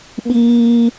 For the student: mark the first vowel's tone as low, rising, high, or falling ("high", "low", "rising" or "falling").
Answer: high